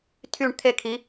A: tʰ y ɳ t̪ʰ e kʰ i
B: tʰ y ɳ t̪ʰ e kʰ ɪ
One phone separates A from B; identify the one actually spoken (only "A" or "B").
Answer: A